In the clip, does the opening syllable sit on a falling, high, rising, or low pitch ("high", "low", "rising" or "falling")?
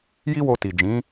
high